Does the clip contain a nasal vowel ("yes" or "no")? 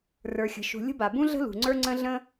yes